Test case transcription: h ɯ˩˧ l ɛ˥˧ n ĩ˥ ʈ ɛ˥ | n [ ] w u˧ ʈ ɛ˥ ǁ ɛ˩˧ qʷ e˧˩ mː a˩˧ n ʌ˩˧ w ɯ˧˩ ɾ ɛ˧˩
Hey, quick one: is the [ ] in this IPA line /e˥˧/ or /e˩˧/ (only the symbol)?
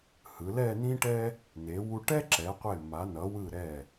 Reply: e˩˧